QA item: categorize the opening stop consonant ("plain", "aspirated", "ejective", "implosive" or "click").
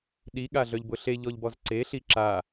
implosive